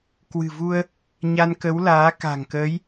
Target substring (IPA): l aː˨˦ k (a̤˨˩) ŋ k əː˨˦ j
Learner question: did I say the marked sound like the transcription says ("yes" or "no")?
yes